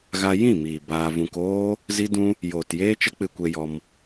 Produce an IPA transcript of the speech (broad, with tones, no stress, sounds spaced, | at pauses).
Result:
ɣ a˧ j ĩ˦˨ m iː˨ b aː˧ v ũ˧ k oː˦ | z i˦ d ũ˦ | j oː˨ t j eː˦ t͡ʃ ə˦ k͡p ɨ˧ kʷ e˧ j ɔ˧ m